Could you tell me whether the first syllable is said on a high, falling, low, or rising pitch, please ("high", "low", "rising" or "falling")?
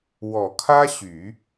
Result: low